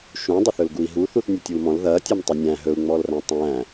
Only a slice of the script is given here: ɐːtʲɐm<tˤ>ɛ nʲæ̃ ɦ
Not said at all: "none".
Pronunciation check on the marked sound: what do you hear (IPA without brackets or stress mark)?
tˤ